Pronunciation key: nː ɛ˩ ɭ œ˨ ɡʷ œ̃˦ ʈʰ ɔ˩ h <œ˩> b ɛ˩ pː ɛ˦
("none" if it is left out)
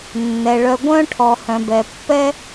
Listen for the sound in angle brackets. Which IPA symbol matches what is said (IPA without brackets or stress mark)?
œ̃˩